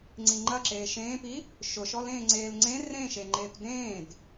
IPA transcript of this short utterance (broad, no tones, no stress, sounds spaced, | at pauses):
ŋ͡ǀ i ŋ͡ǃ ɐ ǁ eː ʃ ẽː p i | ʃ ʊ ʃ ɔ l ẽː ŋ͡ǀ eː l ŋ͡ǀ ẽ r ẽ ʃ e ŋ͡ǃ eː p d ẽː d